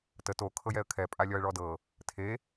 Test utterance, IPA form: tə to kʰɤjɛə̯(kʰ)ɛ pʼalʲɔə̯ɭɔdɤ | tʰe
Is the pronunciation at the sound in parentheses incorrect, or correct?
correct